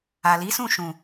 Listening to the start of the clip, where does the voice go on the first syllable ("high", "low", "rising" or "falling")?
low